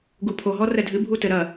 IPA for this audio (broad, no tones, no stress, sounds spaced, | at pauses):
ɡ u pʰ o ɦ ɔ r ɛ dʱ ɨ bʱ u t ɘ ɾ ɐ